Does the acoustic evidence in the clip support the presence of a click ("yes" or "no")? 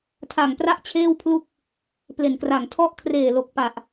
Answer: no